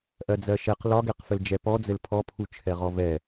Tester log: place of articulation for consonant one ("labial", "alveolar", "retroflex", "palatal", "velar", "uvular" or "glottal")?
glottal